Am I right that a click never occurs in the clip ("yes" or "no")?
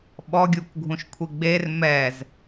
yes